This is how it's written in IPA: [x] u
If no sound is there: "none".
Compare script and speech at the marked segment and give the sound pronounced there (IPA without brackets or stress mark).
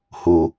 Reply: h